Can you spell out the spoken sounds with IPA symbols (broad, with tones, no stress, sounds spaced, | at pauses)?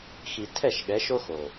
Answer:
x i˨ tʰ ɛ˦˨ ʃ ɠ ɛ˨˦ ʃ o˦ x o˨